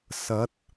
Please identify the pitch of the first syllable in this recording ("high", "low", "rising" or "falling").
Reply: rising